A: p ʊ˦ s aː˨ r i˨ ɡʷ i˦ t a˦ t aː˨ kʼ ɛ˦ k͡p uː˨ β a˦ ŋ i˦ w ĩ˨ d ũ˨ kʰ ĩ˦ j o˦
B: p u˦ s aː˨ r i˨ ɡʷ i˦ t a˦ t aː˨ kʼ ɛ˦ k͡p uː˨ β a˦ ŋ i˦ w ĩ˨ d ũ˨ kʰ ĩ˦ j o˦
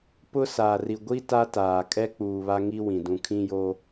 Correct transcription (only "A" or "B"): A